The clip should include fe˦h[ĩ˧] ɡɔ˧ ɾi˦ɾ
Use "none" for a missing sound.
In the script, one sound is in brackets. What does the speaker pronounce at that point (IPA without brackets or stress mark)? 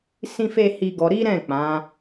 i˧